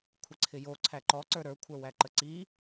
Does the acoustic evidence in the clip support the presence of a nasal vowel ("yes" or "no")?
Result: no